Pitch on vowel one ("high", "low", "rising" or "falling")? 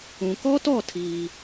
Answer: low